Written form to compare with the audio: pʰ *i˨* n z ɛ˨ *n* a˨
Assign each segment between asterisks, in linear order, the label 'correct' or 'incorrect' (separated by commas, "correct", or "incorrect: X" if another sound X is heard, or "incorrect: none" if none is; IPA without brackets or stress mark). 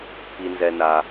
correct, correct